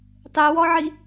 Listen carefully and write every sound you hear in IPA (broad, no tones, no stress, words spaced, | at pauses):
tˤewɔʕi